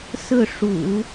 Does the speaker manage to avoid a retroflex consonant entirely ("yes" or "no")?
no